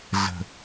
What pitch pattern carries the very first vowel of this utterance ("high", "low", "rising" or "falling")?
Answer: low